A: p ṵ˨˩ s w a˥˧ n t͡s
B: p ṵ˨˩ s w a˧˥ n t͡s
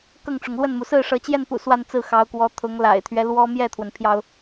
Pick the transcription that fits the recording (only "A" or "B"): A